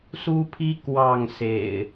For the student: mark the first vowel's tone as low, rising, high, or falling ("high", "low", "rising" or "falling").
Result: high